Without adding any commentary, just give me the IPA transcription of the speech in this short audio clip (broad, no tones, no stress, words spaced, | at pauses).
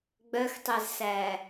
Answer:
ɡ͡bœxtˤɛzsæ